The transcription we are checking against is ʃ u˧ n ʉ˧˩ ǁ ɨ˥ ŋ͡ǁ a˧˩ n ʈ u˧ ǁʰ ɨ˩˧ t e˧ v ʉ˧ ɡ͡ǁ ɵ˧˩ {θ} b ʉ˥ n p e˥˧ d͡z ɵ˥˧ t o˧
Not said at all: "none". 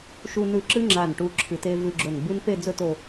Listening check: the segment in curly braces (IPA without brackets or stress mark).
n